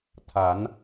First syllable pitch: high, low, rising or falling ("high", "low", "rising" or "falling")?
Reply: rising